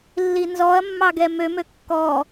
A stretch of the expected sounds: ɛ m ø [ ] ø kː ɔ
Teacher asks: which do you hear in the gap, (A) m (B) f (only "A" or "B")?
A